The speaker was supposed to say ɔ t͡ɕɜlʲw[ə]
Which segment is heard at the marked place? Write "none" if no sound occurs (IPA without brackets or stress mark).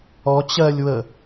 ə